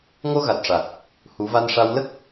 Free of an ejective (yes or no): yes